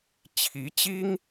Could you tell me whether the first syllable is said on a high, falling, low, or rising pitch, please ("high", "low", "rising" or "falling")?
rising